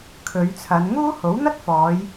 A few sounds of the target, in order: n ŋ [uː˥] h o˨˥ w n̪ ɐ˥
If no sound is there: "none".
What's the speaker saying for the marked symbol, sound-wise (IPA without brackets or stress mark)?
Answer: uː˥